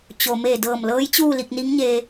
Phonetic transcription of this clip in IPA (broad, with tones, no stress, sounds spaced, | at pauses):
t͡ɕ o˩ m eː˧˩ d ɤː˧˩ m l ɤː˧˥ j t͡ɕ uː˥˨ l i˧ k̚ n i˧˥ ŋ ɲ e˧